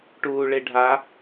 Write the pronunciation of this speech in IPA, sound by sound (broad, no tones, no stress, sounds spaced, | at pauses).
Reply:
ʈ uː ɭ e ɖʱ a